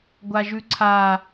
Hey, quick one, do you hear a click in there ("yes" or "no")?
yes